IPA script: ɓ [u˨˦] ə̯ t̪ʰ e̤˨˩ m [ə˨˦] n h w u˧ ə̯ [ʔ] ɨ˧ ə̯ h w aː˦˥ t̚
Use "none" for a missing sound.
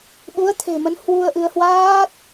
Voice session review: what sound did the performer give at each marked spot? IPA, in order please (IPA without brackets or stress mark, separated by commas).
u˨˦, ə˨˦, ʔ